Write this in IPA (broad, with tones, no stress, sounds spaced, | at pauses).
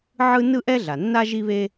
ʕ ɯ˥ n ɯ˥ ʔ ɛ˥ ɮ a˩ nː a˥ ʒ i˥ β e˥